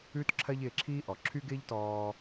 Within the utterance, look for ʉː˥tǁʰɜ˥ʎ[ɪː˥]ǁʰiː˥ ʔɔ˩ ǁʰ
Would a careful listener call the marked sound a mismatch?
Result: yes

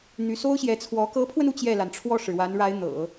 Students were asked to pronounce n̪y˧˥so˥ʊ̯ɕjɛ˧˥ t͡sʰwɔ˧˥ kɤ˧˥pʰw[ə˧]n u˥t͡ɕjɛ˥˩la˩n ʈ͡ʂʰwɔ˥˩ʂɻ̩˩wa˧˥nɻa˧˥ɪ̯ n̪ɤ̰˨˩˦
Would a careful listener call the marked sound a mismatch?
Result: no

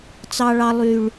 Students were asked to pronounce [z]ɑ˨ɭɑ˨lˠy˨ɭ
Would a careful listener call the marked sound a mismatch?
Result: yes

